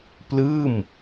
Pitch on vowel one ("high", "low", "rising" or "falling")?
falling